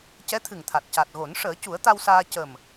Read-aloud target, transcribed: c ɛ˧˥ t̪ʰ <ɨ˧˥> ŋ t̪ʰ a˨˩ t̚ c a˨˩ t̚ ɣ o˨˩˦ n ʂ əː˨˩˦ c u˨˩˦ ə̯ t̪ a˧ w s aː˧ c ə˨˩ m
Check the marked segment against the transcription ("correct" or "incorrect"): incorrect